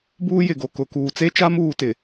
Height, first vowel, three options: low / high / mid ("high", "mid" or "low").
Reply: high